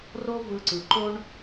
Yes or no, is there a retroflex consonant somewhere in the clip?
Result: yes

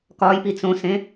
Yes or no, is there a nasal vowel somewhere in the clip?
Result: yes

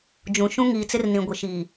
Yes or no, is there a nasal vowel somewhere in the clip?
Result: yes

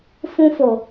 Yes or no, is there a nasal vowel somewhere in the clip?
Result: yes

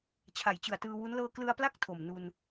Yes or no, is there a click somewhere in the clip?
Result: no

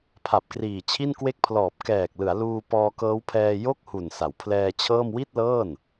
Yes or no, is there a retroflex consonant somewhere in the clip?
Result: no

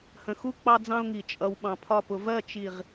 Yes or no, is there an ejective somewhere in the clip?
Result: yes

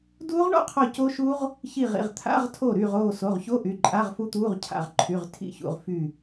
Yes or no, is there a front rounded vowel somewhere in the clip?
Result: yes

